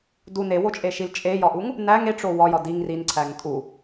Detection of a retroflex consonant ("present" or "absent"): present